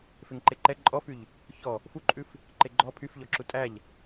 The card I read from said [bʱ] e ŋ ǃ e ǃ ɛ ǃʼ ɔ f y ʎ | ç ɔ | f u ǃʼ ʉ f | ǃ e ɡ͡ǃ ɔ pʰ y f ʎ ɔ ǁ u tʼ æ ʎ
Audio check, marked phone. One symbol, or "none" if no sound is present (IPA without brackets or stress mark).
f